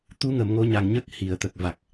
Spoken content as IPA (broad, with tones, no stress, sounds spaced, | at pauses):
t̪ u˧ ŋ ə˨˩˨ m ŋ o˧ ɲ a˨˩ ŋ ɲ ə˦˥ k̚ h i˨˩˨ ə̯ t̪ ə˨˩ k̚ v a˨˩ k̚